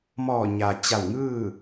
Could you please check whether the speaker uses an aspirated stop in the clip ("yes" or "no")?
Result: no